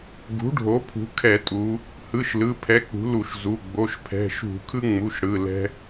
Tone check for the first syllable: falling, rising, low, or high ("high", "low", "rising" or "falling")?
rising